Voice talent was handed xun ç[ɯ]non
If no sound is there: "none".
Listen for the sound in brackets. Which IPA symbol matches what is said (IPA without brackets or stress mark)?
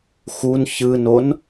ɯ